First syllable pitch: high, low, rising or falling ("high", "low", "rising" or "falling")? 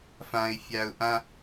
high